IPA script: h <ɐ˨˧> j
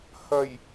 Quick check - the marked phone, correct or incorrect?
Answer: incorrect: ɐ˨˩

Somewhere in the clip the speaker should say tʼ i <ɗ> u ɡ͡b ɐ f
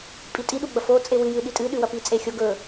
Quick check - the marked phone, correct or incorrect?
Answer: correct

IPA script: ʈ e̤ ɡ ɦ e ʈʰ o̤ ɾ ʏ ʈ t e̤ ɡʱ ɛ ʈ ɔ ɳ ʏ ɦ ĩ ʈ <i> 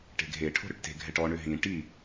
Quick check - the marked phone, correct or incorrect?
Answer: correct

